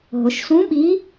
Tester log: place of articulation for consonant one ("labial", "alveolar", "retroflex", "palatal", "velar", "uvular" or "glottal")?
glottal